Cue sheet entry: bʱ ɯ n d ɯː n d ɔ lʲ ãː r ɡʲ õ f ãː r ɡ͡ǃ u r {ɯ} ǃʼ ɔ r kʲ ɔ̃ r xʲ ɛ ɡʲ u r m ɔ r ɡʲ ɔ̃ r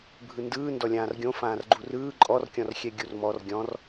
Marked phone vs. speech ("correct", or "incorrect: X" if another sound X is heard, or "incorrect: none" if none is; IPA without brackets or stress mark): incorrect: ɯː